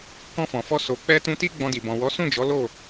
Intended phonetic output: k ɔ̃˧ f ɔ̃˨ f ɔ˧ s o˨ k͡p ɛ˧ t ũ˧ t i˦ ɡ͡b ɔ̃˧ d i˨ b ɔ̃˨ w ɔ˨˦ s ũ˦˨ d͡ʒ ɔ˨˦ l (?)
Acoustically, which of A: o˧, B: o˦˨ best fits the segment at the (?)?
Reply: B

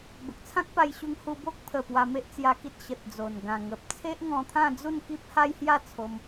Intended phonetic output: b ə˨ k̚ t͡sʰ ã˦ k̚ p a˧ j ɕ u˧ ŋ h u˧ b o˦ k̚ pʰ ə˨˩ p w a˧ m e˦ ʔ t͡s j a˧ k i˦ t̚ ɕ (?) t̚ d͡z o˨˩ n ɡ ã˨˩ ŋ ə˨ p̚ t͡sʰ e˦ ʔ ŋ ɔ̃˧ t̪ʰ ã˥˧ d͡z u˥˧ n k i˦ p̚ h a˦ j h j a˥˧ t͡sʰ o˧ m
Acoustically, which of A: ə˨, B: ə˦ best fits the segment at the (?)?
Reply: A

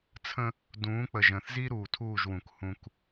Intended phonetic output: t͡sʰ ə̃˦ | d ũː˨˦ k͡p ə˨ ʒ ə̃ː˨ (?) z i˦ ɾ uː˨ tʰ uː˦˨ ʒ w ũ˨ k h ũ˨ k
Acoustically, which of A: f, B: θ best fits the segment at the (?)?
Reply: B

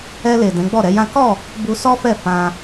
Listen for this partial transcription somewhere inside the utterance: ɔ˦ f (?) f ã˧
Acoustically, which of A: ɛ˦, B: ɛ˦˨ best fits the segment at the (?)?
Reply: B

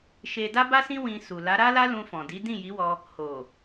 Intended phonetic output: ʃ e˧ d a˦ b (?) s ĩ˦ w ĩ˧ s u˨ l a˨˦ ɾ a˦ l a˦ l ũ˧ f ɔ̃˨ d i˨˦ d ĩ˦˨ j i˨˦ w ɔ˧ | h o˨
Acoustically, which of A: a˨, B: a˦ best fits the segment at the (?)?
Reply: B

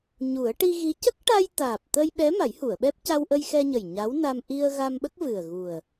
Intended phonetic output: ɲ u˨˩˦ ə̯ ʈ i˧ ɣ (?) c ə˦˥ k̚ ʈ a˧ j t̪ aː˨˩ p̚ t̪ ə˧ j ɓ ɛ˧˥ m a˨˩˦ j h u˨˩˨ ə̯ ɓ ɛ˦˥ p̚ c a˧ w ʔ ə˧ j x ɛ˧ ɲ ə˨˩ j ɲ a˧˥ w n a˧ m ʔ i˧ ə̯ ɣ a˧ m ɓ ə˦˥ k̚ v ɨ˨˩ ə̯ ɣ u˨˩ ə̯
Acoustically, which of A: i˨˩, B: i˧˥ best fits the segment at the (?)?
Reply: B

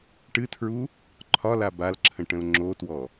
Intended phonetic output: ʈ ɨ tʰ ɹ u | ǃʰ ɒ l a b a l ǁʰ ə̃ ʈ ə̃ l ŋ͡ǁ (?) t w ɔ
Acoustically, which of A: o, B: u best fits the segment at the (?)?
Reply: A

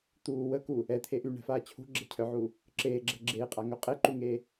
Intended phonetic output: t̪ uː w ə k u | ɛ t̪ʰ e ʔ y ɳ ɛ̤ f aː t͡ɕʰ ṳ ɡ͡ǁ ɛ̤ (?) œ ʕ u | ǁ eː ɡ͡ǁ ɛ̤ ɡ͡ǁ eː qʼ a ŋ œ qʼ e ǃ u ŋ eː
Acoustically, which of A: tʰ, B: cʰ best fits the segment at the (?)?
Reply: B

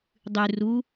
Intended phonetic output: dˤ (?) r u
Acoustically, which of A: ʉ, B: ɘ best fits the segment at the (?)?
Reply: A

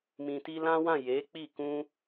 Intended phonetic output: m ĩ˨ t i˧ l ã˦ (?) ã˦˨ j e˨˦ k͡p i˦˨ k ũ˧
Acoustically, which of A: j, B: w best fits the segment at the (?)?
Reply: B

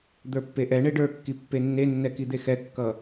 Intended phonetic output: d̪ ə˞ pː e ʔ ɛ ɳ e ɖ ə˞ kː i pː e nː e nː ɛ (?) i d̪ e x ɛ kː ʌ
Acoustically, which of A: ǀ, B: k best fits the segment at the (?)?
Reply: B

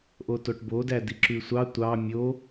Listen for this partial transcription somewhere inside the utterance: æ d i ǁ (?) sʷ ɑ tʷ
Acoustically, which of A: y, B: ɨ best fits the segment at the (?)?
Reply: A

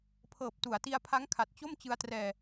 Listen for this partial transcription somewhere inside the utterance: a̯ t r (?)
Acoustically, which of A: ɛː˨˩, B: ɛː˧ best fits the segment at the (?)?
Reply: B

